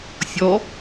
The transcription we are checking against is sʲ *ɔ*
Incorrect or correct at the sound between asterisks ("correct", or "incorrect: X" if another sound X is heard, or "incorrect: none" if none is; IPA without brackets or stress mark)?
correct